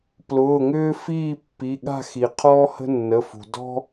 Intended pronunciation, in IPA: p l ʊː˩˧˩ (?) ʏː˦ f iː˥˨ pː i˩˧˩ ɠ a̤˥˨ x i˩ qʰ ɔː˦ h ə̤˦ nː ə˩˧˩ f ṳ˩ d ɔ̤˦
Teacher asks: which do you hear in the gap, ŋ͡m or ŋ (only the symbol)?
ŋ